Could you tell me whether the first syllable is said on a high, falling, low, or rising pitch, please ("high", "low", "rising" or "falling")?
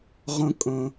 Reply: high